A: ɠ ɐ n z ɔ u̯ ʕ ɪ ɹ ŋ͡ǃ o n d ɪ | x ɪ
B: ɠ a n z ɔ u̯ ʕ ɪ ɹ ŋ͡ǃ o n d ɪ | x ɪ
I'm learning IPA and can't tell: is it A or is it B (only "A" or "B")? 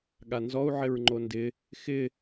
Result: B